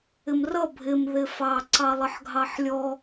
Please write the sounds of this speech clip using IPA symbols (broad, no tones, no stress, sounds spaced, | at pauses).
ɪ m r ʌ bʱ ɪ m ð ɪ f ɑ ǀ ɑ lˠ ə ħ ɡʱ ɑ ħ lʲ ɔ